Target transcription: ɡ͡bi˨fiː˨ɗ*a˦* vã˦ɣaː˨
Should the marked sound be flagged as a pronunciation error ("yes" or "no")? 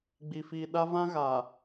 no